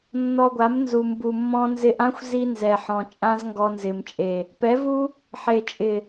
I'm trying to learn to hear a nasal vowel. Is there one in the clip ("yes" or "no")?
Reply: yes